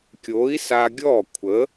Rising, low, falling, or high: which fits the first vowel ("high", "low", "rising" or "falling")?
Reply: rising